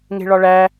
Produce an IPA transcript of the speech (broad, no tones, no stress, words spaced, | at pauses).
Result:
ŋe̤ɭɒɭæ